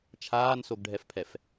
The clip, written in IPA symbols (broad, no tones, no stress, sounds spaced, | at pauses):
t͡ʃʰ aː n s o ɡ ɖʱ ɛ f pʰ ɛ f